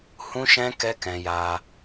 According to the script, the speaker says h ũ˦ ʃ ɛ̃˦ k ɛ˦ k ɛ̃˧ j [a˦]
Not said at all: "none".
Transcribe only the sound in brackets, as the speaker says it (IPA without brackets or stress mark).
a˧